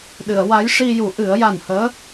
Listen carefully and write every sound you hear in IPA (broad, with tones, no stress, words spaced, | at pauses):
ɗɨ˨˩˨ə̯wa˧˥jʂi˧ju˨˩˦ ʔɨ˨˩˦ə̯ja˨˩nhəː˧˥